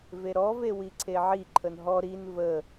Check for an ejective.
absent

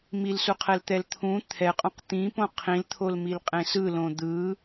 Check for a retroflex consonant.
absent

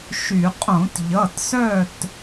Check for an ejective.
present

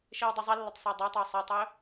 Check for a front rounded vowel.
absent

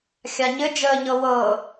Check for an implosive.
absent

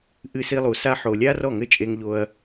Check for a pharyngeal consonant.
present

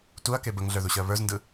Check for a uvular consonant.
absent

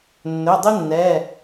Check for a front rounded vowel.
absent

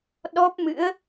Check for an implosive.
present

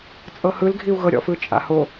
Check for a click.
absent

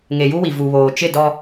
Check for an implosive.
absent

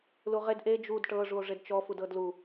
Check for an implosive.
absent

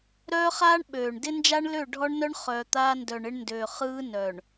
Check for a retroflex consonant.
present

